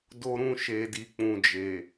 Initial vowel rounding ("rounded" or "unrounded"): rounded